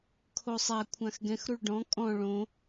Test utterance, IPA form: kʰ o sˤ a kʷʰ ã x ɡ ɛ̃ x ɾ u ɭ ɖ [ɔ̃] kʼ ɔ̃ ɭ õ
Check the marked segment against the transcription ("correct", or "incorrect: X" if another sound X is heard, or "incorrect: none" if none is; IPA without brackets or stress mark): correct